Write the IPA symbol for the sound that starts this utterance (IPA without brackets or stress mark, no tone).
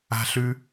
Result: a̤